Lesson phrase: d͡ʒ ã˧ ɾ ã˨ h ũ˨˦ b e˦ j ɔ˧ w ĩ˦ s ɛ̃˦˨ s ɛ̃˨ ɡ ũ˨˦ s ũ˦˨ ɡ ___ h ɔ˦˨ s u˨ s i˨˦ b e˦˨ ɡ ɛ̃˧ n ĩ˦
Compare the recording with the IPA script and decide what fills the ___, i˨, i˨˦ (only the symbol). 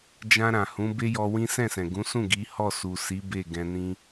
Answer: i˨˦